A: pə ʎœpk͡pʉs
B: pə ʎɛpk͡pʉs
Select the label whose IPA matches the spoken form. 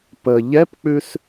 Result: B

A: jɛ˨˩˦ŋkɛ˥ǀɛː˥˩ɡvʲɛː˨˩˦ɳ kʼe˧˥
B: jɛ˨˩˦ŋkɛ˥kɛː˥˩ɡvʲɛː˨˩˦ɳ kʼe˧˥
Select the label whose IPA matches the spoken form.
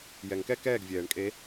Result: B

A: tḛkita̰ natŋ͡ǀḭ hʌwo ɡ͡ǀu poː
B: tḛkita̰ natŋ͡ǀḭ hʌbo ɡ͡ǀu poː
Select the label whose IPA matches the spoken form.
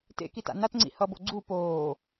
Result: B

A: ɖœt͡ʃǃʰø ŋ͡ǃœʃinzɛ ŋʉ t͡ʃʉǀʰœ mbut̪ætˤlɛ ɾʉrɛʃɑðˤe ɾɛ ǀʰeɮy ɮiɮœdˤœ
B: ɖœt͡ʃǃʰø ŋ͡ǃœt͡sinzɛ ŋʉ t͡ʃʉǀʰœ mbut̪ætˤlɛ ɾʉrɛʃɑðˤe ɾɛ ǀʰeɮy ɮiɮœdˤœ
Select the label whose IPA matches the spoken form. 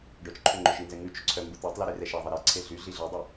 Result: A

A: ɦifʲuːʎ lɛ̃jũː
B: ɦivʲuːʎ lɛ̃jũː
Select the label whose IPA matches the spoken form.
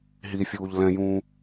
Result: A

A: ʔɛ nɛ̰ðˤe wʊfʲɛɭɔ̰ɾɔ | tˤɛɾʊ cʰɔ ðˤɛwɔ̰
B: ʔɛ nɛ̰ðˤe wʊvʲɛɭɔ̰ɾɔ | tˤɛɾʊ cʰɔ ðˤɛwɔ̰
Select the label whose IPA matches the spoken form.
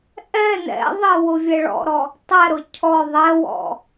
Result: B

